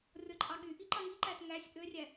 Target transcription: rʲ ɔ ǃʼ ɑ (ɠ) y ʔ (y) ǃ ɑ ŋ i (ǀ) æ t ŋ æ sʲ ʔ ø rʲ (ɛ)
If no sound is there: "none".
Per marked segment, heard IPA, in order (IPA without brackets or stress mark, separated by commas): ɠ, i, ǃ, æ